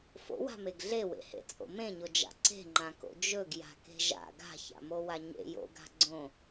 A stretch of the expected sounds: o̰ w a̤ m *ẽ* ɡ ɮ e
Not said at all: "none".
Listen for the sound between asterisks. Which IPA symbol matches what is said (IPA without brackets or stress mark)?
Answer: e